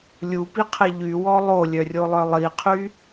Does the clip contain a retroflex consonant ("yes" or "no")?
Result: no